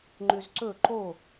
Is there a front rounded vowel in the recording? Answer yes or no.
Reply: yes